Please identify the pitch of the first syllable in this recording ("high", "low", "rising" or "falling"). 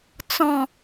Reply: falling